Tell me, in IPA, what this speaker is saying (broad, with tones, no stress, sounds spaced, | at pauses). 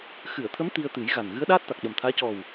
x ɨ˨˩˨ ə̯ t̪ʰ ə˧˥ m t̪ i˧ ə̯ t̪ ɨ˨˩˦ j ɣ a˨˩ n ɣ ɨ˧˥ ə̯ ɗ aː˦˥ t̚ t̪ a˨˩ k̚ ɗ ə˨˩ m t̪ʰ aː˧˥ c ɔ˨˩ w